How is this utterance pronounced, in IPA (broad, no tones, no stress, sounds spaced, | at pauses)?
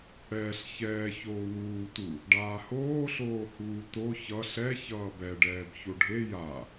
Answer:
ɽ ɛː ɬ ç ɛː ç oː w uː t u | ɖ aː h oː ɬ oː h uː t o ç ʌ ɬ ɛ ç ʌː b ɛ ɖ ɛː b ç o ɖʱ e j a